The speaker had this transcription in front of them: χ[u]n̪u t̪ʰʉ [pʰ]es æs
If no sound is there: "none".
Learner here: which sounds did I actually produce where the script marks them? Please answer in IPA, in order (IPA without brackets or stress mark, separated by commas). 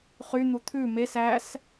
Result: y, m